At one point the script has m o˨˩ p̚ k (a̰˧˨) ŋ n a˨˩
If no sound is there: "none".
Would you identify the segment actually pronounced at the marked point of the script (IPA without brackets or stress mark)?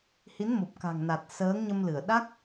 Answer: a̤˨˩